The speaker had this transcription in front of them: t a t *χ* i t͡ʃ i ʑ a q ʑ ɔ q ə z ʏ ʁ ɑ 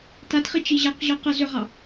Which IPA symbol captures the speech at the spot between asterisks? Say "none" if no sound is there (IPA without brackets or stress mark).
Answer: χ